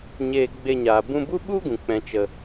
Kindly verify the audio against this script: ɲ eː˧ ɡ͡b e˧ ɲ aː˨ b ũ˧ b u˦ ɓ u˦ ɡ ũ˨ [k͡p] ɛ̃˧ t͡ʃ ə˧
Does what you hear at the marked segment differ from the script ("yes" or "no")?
no